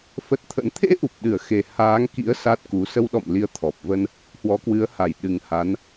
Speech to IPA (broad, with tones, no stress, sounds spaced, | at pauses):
f ə˦˥ t̚ t̪ʰ ə̰˧˥ n t̪ʰ ḛ˧˥ ʔ u˨˩ p̚ ɗ ɨ˧˩ ə̯ x e˨˩ h aː˨˦ ŋ k ḭ˧˥ ə̯ s a˦˥ t̚ k u˨˦ s ə˧ w ɗ ɔ̰˧˨ m l i˨˦ ə̯ t̪ʰ ɔ˨˩ p̚ v ə˧ n | h w ɔ˨˦ k w ɨ˨˦ ə̯ h a˧˩ j ɗ ɨ˨˩ ŋ h a˨˦ n